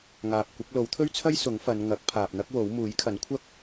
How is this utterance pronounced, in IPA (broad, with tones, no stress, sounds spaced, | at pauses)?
ŋ aː˨ p̚ kʷ ɪ˨˥ k̚ l o˨˥ w t̪ʰ ɵ˥ ɥ t͡sʰ ɐ˥ j s ʊ˨˥ ŋ f ɐ˨˧ n ŋ ɐ˨˥ k̚ pʰ aː˨ p̚ n̪ ɐ˥ k̚ w o˨˥ w m uː˨˥ j kʰ ɐ˨˥ n kʷʰ ɐ˥ k̚